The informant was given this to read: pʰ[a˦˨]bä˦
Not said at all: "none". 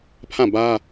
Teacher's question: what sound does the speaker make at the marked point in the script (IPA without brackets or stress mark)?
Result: ã˦˨